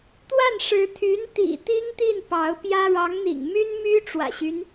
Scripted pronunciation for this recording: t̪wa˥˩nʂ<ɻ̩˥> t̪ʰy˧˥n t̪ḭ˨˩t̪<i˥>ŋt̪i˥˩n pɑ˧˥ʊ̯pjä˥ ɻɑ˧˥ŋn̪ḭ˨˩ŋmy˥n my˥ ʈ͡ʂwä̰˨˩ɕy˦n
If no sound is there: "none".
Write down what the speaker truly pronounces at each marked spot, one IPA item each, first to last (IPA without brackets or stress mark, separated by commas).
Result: ɻ̩˧˥, i˥